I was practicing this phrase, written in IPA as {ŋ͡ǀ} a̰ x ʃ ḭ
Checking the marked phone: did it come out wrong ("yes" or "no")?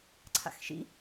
yes